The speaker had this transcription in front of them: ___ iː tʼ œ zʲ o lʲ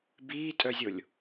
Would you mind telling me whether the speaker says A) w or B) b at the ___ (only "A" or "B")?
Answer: B